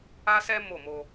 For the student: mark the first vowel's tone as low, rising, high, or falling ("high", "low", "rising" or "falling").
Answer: high